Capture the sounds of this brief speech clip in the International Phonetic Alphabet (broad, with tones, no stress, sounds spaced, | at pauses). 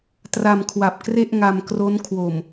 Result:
t r a˧ m kʰ w a˨˩ p̚ k r e˥˩ ʔ ŋ a˧ m k r o˦˥ n kʰ w o˨˩ m